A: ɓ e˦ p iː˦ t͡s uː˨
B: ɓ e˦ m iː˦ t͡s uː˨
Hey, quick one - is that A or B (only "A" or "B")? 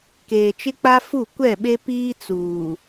A